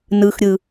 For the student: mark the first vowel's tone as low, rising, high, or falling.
low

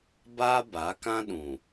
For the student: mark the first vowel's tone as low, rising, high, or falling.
high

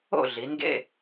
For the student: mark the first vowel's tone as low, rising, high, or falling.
falling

